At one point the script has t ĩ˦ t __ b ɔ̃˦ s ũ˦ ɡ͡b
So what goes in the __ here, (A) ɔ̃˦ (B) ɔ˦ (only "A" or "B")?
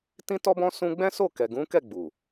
B